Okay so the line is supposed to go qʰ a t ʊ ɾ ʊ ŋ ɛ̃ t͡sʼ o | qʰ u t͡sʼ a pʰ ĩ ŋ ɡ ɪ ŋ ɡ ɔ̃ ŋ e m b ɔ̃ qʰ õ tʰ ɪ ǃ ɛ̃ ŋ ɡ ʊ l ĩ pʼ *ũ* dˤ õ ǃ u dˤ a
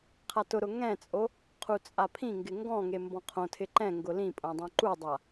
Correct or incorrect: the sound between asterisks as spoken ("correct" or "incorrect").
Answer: incorrect